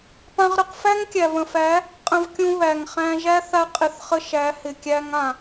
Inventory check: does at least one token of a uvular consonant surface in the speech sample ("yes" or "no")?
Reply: yes